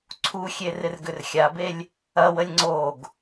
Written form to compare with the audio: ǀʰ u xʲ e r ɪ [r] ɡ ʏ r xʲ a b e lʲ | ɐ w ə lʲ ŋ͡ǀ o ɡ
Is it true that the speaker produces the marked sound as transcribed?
yes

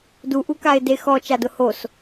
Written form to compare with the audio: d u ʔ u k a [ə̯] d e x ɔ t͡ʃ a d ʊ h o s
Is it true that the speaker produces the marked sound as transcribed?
no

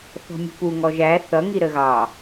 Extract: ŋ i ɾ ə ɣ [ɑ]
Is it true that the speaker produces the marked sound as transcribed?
yes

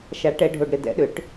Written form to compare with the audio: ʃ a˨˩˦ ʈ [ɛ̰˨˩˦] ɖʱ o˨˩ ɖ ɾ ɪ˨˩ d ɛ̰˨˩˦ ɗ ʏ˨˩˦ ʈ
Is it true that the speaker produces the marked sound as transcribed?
no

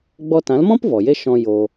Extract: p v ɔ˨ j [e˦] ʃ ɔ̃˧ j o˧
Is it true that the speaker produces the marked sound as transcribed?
yes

